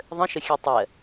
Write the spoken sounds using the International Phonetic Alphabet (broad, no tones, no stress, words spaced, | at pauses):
ðˤə̃ʃəxʲɜ tˤɜ